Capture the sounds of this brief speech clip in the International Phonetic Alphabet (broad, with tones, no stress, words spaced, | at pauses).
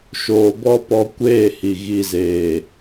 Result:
ʃoː˧bɔ˦pɔ˧ kʷeː˦˨hi˨ ɣi˨zeː˨